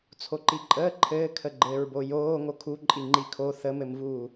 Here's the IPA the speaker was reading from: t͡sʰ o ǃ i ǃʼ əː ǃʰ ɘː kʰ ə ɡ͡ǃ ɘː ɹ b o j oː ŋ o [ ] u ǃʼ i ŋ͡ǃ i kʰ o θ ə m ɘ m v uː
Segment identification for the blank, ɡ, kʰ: kʰ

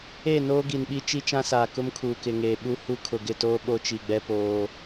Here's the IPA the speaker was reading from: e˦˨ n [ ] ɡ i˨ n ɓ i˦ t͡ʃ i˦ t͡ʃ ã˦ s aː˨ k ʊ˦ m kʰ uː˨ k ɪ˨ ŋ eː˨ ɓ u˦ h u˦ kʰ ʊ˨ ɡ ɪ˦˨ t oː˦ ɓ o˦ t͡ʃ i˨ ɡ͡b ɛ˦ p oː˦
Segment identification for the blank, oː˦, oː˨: oː˦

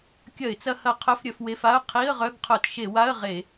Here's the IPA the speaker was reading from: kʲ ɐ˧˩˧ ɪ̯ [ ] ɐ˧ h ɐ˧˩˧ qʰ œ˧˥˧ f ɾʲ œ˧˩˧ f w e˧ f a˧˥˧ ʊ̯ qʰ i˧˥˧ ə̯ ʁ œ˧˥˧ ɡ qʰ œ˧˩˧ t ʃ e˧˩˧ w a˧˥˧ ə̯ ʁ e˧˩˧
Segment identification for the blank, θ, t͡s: t͡s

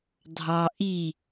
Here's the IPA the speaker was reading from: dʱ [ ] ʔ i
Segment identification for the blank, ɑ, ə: ɑ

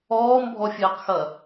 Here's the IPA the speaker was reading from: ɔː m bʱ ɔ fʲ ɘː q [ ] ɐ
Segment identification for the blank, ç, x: x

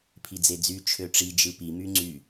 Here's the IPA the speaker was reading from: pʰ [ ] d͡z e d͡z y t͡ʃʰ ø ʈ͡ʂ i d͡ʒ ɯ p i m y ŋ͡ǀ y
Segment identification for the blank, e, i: i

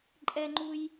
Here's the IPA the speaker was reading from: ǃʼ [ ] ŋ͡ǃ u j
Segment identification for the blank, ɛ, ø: ɛ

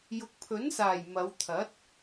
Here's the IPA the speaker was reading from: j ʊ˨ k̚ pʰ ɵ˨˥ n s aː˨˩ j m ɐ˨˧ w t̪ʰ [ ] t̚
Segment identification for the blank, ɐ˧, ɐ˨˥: ɐ˨˥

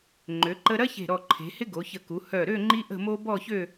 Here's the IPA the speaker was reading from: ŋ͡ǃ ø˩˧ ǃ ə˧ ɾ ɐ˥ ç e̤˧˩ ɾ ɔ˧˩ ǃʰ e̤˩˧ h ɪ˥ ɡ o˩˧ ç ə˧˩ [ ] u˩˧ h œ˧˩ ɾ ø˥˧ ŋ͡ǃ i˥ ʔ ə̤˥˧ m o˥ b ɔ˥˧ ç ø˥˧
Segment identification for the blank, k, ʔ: k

